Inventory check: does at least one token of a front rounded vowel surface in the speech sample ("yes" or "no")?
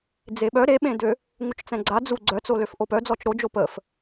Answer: yes